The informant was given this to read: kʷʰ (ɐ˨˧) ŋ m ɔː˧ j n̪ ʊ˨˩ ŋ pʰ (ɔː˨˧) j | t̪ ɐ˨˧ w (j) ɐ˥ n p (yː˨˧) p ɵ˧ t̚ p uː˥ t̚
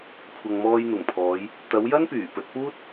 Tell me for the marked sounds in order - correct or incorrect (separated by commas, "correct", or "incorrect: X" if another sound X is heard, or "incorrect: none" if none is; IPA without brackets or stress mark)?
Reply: incorrect: ɐ˨, correct, correct, incorrect: yː˨˩